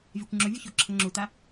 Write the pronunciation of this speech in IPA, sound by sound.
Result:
vʲ a kʷ ŋ͡ǁ o vʲ u ç o ǁʰ ʌ ŋ͡ǁ u t̪ a

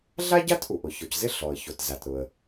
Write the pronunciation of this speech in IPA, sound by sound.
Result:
ɮ a˥ ɟ a˥ t ʔ u˩ ʔ ʊ˩ ç ɔ˩ c z ɪ˥ ɬ ɔ˩ ə̯ ç o˩ t z a˩ t ɾ ʊ˩ ə̯

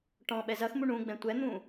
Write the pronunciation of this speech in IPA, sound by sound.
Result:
ʈ ɔ̃ ɓ ɛ z ɐ x m u ɳ ũ ɡ͡b ɛ̃ tʷ ɛ n̪ ũ

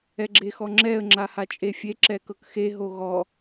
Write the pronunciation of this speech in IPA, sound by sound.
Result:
ɛ ɡ͡ǁ e x ɔ ŋ͡ǁ ɛ ə̯ ŋ͡ǁ a h a t͡ʃʼ e fʲ e ǁ ɛ k ɤ k x e ɦ o ɣ ɔ

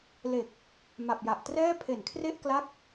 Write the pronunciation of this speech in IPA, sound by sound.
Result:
l e˨˩ k̚ | m a˨˩ p̚ j a˨˩ ʔ t r ɛː˥˩ pʰ e˨˩ n kʰ r e˥˩ ʔ k l a˦˥ k̚

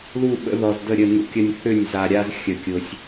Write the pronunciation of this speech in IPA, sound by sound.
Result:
l u˦˨ ɓ ə̰˨˦ ð ɔ˨ z d ə˦˨ ɾʲ ə˦˨ n ṵ˦ kʲ ə˦ nʲ θ ʏ˦˨ nʲ z a˨ ɾʲ a˦ z xʲ ə˨ kʲ ʊ˨ sʲ

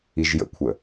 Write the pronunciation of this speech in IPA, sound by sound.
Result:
i ʒ j ə̰ kʷʰ ə

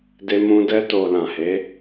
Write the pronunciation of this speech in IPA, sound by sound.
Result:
d e˧ m ũ˧ d ɛ˧ t o˨ l ã˨ h e˨˦

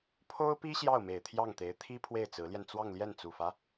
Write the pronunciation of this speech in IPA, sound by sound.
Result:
pʰ o˥ ʊ̯ p i˥ ɕ j ɑ˥˩ ʊ̯ m e˨˩ ɪ̯ t̪ʰ j ɑ˥˩ ŋ t̪ e˧˥ ɪ̯ t̪ʰ i˥ pʰ w e˥˩ ɪ̯ t͡s ɹ̩˧˥ l j ɛ˧ n t͡s w ɑ˥˧ ŋ l j ɛ˥˩ n t͡s u˨˩ f ä˦

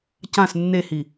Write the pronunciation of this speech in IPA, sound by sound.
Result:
c ã s nː e h i

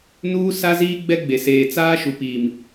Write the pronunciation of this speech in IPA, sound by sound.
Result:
n uː˦ s a˦ z iː˦ ɡ͡b ɛ˦ ɡ͡b e˨ s eː˨ t͡s aː˦ ʃ u˨ p iː˨ m

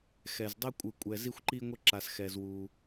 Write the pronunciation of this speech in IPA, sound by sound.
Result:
x ɛ˨ z dˤ ɛ˦ kʷʼ ɯ˧ kʷʼ ɛ˧ z i˧ xʷ ǃ i˧ ŋʷ ɛ˧ ǁ a˧ s x ɛ˧ z w u˧

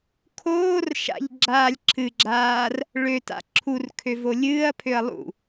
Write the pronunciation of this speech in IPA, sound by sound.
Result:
kʰ oː r ʃ a̰ ʎ ɡ͡ǁ aː lʲ ǁʰ ɨ ɡ͡ǁ aː r | ɭ ø t a̰ ǁʰ u r kʰ ø v o lʲ ɨː ɐ̯ pʰ ø ɐ̯ lˠ ṵ

